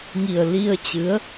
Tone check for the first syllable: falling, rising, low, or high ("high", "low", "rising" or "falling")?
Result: low